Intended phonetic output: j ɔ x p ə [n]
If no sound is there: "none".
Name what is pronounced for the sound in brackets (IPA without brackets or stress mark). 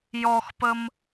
m